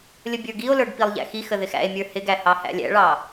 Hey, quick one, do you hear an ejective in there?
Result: no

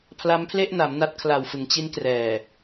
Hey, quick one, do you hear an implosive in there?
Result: no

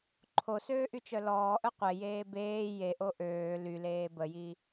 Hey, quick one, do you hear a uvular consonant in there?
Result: yes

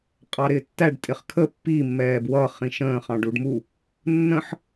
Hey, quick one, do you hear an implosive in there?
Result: no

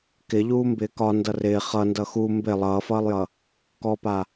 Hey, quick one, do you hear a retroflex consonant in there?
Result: no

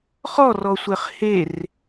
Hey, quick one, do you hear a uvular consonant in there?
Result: yes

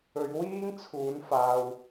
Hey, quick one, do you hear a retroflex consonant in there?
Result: no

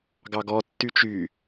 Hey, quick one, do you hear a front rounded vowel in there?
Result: yes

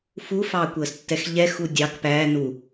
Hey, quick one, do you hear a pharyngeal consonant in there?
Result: no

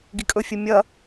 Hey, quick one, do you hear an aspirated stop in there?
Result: no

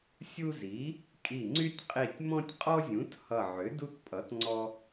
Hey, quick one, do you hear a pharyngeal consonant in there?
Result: yes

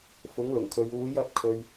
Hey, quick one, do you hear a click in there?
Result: no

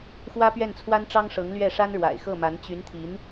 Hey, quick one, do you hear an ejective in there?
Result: no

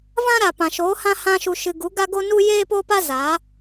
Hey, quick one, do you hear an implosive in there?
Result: no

